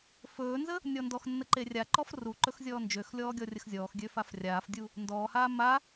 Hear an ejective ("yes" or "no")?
no